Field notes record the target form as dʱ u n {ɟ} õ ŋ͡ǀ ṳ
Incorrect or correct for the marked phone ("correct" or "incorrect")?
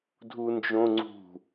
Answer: incorrect